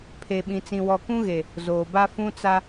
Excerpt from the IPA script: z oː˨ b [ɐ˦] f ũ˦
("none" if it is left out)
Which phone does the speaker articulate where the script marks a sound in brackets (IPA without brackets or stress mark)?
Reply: a˦